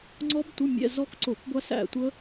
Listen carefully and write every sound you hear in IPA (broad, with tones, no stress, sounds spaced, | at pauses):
ŋ͡ǀ ɔ˦˥ b tʷ ə˧˥˧ mʲ ɛ̰˧˥˧ z ɔ˦˥ k ǀ o˧˩˧ k ɡʷ a˦˥ s æ̰˦˨ tʷ ə˦˥